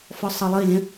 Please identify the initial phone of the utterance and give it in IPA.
f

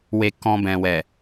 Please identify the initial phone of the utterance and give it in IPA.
w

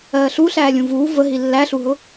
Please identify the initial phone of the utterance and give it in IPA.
ɜː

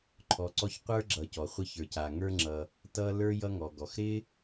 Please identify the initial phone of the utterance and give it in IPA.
ǃʰ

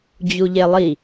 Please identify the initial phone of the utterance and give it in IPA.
d͡ʑ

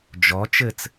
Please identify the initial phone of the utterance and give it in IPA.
d͡ʒ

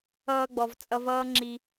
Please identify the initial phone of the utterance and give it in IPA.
ʌː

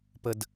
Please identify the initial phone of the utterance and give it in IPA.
p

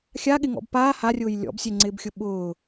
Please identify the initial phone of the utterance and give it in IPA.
xʲ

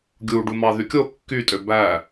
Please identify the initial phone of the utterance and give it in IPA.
ɡʲ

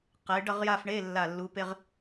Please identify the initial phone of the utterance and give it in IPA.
q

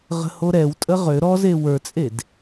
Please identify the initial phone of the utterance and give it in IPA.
ʁ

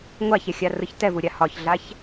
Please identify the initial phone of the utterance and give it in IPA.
ŋʷ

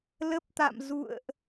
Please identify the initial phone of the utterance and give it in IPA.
l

